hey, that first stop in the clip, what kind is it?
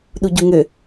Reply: implosive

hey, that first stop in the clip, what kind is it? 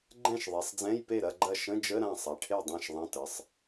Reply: click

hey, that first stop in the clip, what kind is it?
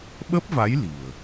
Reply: implosive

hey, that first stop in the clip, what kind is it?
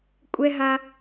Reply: ejective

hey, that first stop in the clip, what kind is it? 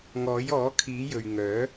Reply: aspirated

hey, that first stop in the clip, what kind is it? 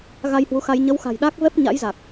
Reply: implosive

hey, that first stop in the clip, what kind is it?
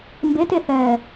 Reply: plain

